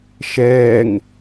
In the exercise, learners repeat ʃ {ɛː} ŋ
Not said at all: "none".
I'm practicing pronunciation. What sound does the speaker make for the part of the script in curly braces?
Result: ɛː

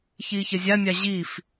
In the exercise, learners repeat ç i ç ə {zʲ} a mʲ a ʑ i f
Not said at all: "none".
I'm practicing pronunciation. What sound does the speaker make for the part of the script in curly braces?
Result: zʲ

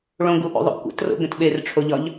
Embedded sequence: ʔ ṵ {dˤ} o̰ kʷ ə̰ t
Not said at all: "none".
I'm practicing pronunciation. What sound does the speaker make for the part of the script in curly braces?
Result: ðˤ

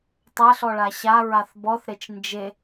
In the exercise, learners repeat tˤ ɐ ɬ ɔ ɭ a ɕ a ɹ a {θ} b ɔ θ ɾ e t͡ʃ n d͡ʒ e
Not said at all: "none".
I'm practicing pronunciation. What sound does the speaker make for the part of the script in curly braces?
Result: θ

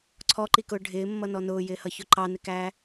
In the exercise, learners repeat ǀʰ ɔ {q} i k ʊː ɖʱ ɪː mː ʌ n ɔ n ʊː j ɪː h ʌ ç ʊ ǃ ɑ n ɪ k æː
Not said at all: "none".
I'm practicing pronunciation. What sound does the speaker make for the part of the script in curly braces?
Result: ǃ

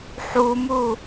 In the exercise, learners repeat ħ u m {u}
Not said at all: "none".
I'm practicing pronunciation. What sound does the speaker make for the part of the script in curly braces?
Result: u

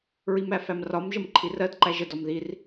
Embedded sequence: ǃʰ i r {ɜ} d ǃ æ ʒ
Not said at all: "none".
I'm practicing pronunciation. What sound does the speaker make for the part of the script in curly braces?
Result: ɜ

